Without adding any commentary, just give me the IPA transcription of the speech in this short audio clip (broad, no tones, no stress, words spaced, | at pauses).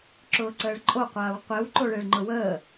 ǁʊːǀəːɭǃʼo qʷaːwqʷew ǃoɭeɭŋ͡ǃʊwəː